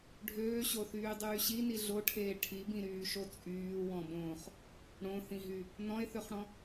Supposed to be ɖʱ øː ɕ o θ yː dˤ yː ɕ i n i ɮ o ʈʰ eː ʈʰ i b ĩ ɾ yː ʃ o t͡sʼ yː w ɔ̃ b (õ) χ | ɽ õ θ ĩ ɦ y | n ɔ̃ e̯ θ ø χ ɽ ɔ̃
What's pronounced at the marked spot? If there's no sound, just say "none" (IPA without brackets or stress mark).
õː